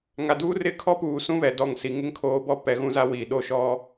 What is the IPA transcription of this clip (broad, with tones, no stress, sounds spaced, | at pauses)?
ŋ a˨ d uː˦ r ɪ˦˨ kʰ ɔ˦ p uː˨ s ũ˦ β ɛ˨ d ɔ˦˨ ŋ s i˨ ŋ ɪ˦ ŋ kʰ oː˨˦ b ɔ˦ p ɛ˨ ɣ ũ˦ z a˦ w iː˨ ɗ o˦ ʃ ɔ˦